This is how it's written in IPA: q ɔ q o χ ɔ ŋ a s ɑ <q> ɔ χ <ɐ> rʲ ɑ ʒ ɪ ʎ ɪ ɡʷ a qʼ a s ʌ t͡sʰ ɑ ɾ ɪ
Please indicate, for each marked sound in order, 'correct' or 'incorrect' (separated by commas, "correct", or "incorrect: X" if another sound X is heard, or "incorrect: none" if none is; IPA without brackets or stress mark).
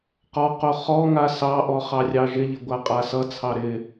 incorrect: ʔ, incorrect: ɑ